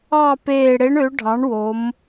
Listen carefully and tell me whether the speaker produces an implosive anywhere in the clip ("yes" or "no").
no